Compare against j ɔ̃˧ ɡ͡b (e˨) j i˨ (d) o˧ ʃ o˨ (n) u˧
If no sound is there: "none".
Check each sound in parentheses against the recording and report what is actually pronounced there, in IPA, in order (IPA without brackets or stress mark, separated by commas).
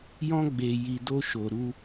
e˨, d, ɾ